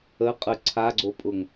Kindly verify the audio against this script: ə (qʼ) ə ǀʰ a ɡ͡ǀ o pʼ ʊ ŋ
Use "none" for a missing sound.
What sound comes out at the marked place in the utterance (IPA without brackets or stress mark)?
qʼ